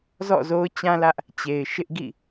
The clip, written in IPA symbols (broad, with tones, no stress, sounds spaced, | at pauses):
z ɔ̰˦˨ z o˦ ʊ̯ t͡ɕ ã˦ l ä˦ ʔ | t͡ɕ e˨ ɪ̯ ʃ ɪ˦ ʔ ɡ ḭ˦˨